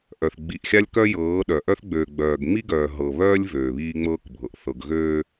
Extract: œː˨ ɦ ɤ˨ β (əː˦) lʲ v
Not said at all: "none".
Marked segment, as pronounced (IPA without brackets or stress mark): œː˦